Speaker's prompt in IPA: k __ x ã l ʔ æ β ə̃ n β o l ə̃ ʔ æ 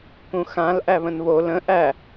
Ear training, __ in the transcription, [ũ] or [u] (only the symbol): ũ